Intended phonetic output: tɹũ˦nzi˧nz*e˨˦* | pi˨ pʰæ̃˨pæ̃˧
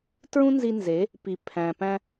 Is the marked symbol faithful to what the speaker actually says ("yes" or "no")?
yes